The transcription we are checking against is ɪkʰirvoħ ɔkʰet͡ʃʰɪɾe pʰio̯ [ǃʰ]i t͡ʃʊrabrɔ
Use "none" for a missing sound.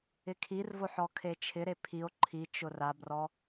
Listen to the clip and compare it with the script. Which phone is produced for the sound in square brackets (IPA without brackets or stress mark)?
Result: ǃʰ